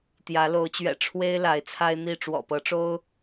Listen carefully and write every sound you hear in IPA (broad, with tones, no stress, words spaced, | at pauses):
t̪jä˨˦lo˨˦ʊ̯t͡ɕɥɛ̰˨˩ ʈ͡ʂʰwe˦ɪ̯ la˨˦ɪ̯t͡sʰa˦ɪ̯n̪i˥˨ ʈ͡ʂwɔ̰˨˩pɤ˨˦ʈ͡ʂo˦ʊ̯